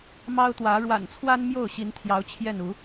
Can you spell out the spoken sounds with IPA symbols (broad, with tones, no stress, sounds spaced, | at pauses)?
m ɑ˦ ʊ̯ t̪ w ä˨˦ ɻ w a̰˨˩ n t͡sʰ w a˦ n m j o˥˨ ʊ̯ ɕ i˨˦ n t̪ʰ j ɑ˨˦ ʊ̯ t͡ɕʰ j ɛ˥˨ n u˨˦